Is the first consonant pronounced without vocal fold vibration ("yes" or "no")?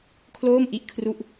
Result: yes